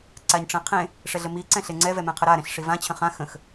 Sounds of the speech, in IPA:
ǀ a ɲ ʈ͡ʂ ɛ̃ qʰ ẽ | ʂ ɛ ɮ ə m i ǀ ɛ̃ ɬ e ŋ͡ǀ ɛ v ɛ m ɛ̃ qʰ ə ɾ a ɾ ẽ ɬ ʂ i v ã t͡ɕʰ ə̃ χ ã x ə̃ x

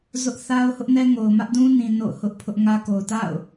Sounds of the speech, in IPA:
z ʊ˦ ʔ θ a˦ ʊ̯ h ʊ˦ ʔ n ɛ˦ ŋ o˨ ʊ̯ m ä˦ ʔ d ũ˦ n ĩ˨ n o̰˦˨ ʊ̯ h ʊ˦ ʔ pʰ ʊ˦ ʔ ŋ ä˦ k o˨ ʊ̯ t a̰˦˨ ʊ̯

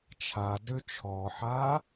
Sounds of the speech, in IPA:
t͡ʃʰ a d ø t͡ʃʰ ɔ ħ a

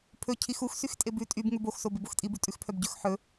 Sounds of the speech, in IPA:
pʰ ɵ cʰ i x u x s y x tʼ e b ʉ tʼ y b ŋ ʉ b o x s o b e b o x tʼ i b ʉ tʼ ʉ x pʰ œ b ɟ ɵ x ħ ɵ

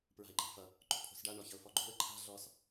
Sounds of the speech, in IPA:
p ɹ a̤ ɪ̯ ǃ a̤ f ʌ | ǃ o̤ pʰ o̤ s ɖ a ɳ ɔ ç ʌ ʊ̯ f ɔ ɡ͡ǃ o̤ ə̯ ǃʰ a̤ ɮ ɔ s

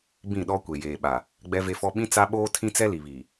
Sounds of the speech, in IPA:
b ĩ˦˨ ɗ ɔ˦ kʷ e˨ j eː˨ ɓ a˨ | ɡ͡b ɛ˦ v e˦ f ɔ˦ ɓ ĩ˦ t͡s a˦ ɓ oː˦ tʰ ĩ˦ t͡s ɛ˦ l i˨ β iː˨

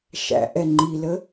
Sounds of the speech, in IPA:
ʃ æ̰ ʔ ɛ ŋ͡ǃ i l ə

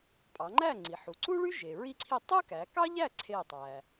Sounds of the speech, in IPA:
pʼ ɑ˩˧ ŋ͡ǃ æ˥˨ ŋ͡ǀ i˩ ħ u˩˧ ǀ u˥ ɭ y˥ ʒ e˩ ɹ i˥ ǀʰ i˥˨ tˤ ɯ˥ k æ˩˧ k ɑ˥ ʎ æ˥˨ ǀʰ e˥˨ tˤ æ˩

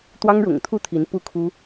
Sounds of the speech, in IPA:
t̪ w ɑ˦ ŋ ɻ ʊ̰˨˩ ŋ t̪ʰ u˥˨ t̪ʰ i˨˦ n p u˥˨ kʰ u˦

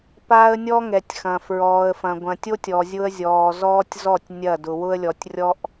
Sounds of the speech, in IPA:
p aː˦ ə̯ nʲ ɔ˦ ŋ ɛ˨ tʲ x ɐ̃˨ f ɹ ɔː˨ ə̯ f ɐ̃˨ ɡʷ ɐ̃˨ tʲ o˦ tʲ ɔ˨ zʲ ʊ˦ ə̯ zʲ ɔː˨ z ɔː˦ tʲ z ɔ˦˨ tʲ nʲ ɐ˦˨ d ʊ˨ w ʊ˦ ə̯ lʲ ɔ˨ tʲ rʲ ɔ˦ ʔ

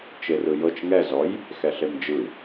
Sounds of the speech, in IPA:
t͡ʃ e r ɯ j ɤ t͡ʃ ŋ ɛ z ɔ j | x ɛ ɬ e m d͡ʒ ɯ

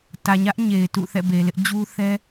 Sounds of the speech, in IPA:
t ä˨ ɲ ä˦ ʔ ɲ e˨ ɪ̯ t ṵ˦˨ θ ɛ̰˦˨ b e˨ l ɪ˦ ʔ d͡ʑ u˦ θ ɛ˦

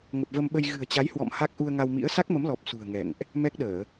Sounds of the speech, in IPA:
ŋ ə˨˩ p̚ v ə˧ m ɓ ə˧ j ɣ ɨ̤˨˩ ə̯ t͡ɕ a˨˦ j h w ɔ̰˧˨ m h a˦˥ k̚ ʔ u˧ ə̯ ŋ a˧ w m ḭ˧˥ ə̯ s a˦˥ k̚ m ə˨˦ m l ɔ˨˩ p̚ s ṳ˨˩ ə̯ ŋ ɛ̰˧˨ ŋ ʔ | m ɛ˦˥ k̚ ɗ əː˧˩˨

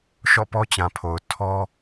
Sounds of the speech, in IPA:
ʃ ɔ̰˦˨ p ɔ˦ t͡ɕ ã˨ pʰ o˨ ʊ̯ tʰ ɔ˦

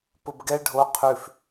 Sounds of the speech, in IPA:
p ʊ b ɡ ɛ ɖʱ o qʰ ʉ f

